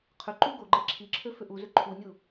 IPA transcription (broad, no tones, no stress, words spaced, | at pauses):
qʰʏǃu ɡoɡ͡ǃe ǁʰiǁʰø fʏʔuzʏ ǃʰunʲu